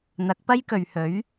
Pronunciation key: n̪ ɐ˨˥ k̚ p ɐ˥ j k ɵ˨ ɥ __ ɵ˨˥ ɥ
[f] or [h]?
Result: h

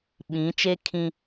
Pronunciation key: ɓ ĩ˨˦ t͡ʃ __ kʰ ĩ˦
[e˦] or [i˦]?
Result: e˦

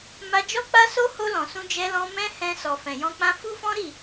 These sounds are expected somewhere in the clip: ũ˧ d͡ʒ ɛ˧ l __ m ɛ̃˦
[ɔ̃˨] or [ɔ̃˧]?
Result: ɔ̃˧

